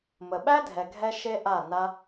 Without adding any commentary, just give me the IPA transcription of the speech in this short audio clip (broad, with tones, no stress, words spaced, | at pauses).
mə˨ ɓæ˦dʱɛ˨ɡʱɛ˧ ʃe˦ʔa˦˨ na˦